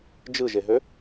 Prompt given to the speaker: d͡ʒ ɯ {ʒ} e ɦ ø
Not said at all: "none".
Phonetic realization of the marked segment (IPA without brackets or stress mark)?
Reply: ʒ